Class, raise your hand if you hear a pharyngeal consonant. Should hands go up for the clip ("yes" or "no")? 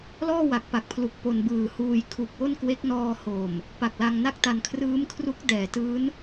no